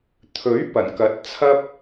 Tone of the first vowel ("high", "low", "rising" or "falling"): rising